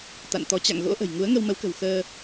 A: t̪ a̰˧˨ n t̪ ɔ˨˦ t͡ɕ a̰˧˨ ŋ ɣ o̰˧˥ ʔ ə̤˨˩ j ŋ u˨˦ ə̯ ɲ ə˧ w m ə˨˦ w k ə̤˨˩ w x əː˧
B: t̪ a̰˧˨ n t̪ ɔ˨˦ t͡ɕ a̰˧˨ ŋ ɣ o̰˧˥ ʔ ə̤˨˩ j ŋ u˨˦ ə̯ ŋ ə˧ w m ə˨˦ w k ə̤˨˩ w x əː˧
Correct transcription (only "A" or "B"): B